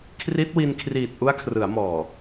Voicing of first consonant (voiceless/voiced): voiceless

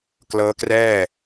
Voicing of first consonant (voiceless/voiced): voiceless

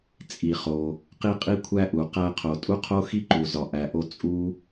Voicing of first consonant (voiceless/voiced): voiceless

